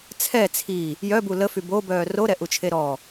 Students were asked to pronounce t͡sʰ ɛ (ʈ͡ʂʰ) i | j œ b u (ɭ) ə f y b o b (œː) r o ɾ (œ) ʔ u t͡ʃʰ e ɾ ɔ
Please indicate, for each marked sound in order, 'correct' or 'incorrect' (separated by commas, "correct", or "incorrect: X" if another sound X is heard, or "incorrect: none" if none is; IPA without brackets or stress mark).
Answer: incorrect: t͡sʰ, incorrect: l, correct, incorrect: ɛ